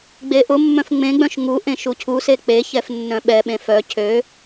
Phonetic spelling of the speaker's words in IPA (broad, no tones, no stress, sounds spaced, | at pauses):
ɡ͡b e ʔ ʊ mː œ̃ f ŋ͡m ẽ ɡ͡b œ̃ ʃ ŋ u ʔ ẽ ʃ u cʰ u s e k͡p e ç ɛ f nː œ̃ ɓ ɛ ɓ ẽ f œ cʰ ø